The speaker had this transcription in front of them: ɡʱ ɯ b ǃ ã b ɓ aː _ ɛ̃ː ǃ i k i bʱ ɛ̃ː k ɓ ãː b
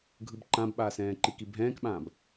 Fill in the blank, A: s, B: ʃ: A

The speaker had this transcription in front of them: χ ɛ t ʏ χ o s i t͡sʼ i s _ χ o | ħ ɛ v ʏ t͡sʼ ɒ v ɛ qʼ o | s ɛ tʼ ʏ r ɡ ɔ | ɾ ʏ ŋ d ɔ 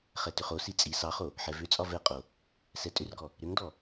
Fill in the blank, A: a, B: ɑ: B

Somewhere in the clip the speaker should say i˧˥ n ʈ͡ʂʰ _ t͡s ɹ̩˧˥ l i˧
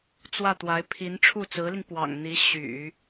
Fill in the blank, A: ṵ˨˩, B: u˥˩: B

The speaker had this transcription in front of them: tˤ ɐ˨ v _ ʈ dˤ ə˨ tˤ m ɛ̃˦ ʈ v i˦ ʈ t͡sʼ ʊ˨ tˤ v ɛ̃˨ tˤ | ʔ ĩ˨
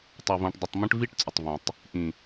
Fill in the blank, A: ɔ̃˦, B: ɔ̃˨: B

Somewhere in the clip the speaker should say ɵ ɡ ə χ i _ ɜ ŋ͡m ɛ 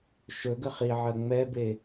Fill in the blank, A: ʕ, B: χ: A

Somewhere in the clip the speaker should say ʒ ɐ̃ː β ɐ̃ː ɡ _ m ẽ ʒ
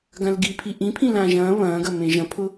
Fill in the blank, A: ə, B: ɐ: B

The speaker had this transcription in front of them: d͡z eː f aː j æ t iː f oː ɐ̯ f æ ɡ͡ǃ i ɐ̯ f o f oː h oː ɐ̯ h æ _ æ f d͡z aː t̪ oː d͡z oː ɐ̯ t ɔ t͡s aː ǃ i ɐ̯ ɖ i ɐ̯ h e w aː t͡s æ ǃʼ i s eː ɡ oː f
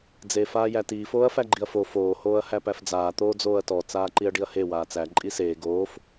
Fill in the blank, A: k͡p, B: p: B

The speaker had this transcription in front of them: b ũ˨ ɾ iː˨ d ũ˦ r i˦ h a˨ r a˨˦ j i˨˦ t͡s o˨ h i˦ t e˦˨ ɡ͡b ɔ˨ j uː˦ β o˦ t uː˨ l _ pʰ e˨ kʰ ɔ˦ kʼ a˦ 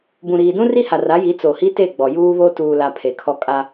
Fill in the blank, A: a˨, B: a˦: A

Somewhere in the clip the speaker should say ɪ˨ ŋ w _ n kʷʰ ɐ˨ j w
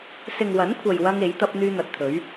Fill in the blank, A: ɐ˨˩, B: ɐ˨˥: B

